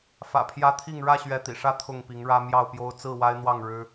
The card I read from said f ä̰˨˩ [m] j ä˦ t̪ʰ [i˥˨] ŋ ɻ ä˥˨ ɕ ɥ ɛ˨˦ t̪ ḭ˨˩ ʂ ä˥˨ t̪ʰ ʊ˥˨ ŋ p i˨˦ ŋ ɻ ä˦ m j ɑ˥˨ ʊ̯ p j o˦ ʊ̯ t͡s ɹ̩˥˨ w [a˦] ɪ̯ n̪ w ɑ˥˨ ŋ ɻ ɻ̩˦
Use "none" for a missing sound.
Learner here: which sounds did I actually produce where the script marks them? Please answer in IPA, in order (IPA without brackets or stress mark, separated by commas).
pʰ, i˥˨, a˦